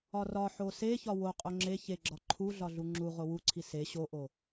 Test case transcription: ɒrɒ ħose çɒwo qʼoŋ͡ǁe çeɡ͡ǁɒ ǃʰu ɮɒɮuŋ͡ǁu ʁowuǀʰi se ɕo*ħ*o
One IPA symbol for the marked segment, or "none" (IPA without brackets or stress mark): ʔ